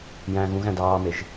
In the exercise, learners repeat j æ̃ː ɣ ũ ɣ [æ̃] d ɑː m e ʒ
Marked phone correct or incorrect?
correct